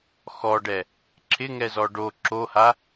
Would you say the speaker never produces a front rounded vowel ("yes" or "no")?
yes